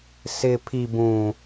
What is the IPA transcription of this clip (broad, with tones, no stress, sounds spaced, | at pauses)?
s ɪ˨ pʰ i˨ b ũ˨